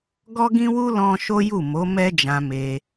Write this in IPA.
ɡ ɔ˦ ɡ ĩ˦ w u˦ l ɔ̃˦ ʃ o˦ j u˦˨ m o˨˦ m ɛ˦ d͡ʒ ã˧ m e˧

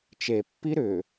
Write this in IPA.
t͡ʃ e pː i ɾ ʏ

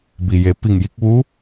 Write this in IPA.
b i˩ j e˩˧ p i˧˩ ŋ j i˥˨ k̚ ʋ u˧˥

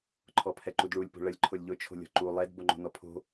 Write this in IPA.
ǃʰ ɔ pʰ ɛ ǃ u d ɭ u lʲ p o̤ ɭ ə lʲ ǃʰ ʊ lʲ ʎ ʊ t͡ʃʰ o̤ lʲ ɔ̤ ǃ u lˠ ɛ d b o ŋ͡ǃ o̤ n ɔ pʰ o̤

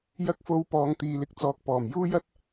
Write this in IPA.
j ɐ˧ k̚ f o˨˧ w p ɔː˨ ŋ t̪ iː˨ l ɪ˧ k̚ t͡s ɔː˨ k̚ p ɔː˨˩ m j uː˥ j ɐ˥ t̚

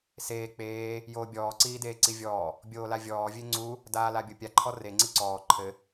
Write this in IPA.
s eː k͡p eː | j oː bʲ ɔː ǀ iː d eː ǀ i vʲ ɔː | bʲ oː l a vʲ ɔː vʲ e ŋ͡ǀ u | d aː l a bʲ o pʲ a ǃʰ ɔ r e ŋ͡ǀ i ǀ ɔː ǃʰ ɘ

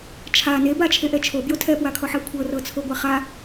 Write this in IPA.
t͡ʃʰ a n e b a t͡ʃʰ e ʔ ɛ t͡ʃʰ o b j o tʰ ɛ p w a kʰ ɔ ħ a kʷʰ ɤ r ɤ t͡sʰ o ɡʷ a χ a

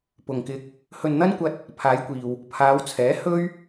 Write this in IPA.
p ʊ˨ ŋ k ɪ˧ k̚ | h ɵ˨ n n̪ ɐ˥ n kʷ ɐ˧ t̚ | pʰ aː˨˧ j kʷ iː˨ w | pʰ aː˨˧ w t͡sʰ ɛː˨˥ h ɵ˥ ɥ

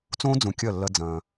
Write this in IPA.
t͡s õː˦ d͡z ũ˨ kʲ ɐ˦˨ lː ɐ˦ d͡z ɐ̃ː˦

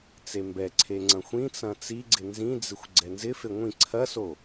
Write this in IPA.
t͡s e m b ɛ ǀʰ e ŋ͡ǀ ɐ̃ xʷ ĩ t͡s ɐ̃ t͡s i ɡ͡ǀ ɪ n z ĩ d͡z ɪ xʷ ɡ͡ǀ ɛ n z ɪ f e ŋʷ ĩ ǀʰ ɐ s o

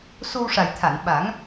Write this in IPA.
s o˧ w ʂ a˨˩ j t̪ʰ a˨˩˨ n ɓ a˨˩˦ ŋ

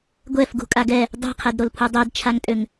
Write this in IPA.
ɡʷ ɛ f ɡ ṳ kʼ a ɡ ɛ | dˤ ɛ̤ qʰ ɛ d ɾ o l pʰ u dˤ e d t͡ʃʰ a ŋ tʼ ø ŋ

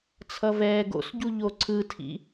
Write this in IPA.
t͡sʰ ʌ v ɛː ɡ o̰ s ɟ u ʎ o ǀʰ ɯ tʰ ḭ

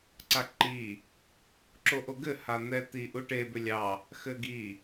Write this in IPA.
ǀ a ǃ i | ǁ o ʔ o ɡ ɘ h a n̪ ɛ t̪ i ʔ u ʈ e b ʏ lʲ ɑ | x ɘ ɡ i

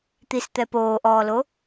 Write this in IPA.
t̪ i s t̪ ɛ p oː ʔ ɔː l o

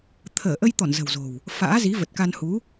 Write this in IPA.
t̪ʰ əː˧˩ ʔ ə˧ j t̪ ɔ˧˩ n z ə̤˨˩ w z o̤˨˩ w | f a̰ː˧˥ z i˨˦ v ə˨˩ t̚ k a˧ n h u˨˦

